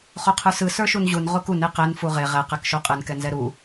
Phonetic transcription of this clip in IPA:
χoqʰə˞sɯ sə˞ʃunʑun ʁokun eqɛn fuʁe ʁɛ qɛkʃoqʼɯn kɛnzɛɾu

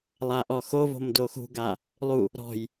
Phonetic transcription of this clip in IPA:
lˠaʔɔxovo̤m doxṳɡa | lˠu | ɾɔ̤j

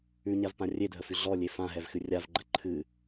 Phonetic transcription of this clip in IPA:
ʉɲavpã rʲedʱəfʉ ɮɔlʲe fãɦɛvxɨ rʲavɡ͡ǃə ǃʰɨ

